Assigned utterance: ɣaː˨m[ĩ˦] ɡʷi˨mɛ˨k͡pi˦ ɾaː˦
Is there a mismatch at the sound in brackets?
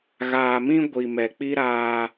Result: no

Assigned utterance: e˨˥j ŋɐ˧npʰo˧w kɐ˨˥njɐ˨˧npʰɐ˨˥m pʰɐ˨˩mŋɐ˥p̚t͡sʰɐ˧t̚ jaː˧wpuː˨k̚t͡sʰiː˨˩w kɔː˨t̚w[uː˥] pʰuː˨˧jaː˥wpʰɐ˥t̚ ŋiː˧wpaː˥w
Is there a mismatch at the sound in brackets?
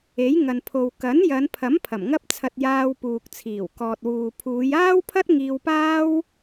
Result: yes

